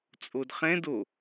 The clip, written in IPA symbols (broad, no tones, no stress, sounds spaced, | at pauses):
t͡sʼ o d χ ɛ̃ d o